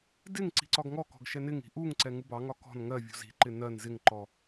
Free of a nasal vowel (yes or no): yes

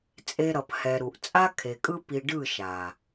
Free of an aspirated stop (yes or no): no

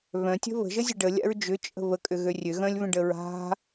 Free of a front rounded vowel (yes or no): no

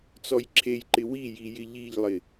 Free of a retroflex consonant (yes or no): yes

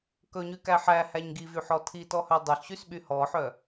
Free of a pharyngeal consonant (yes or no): no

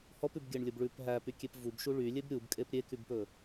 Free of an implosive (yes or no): yes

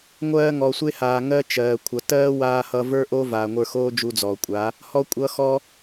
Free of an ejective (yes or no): no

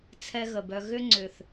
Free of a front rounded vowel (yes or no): no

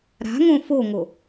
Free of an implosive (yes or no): yes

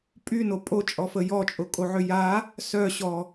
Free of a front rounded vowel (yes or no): no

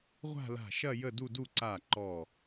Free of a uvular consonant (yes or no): no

